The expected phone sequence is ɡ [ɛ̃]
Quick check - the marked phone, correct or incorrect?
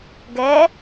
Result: incorrect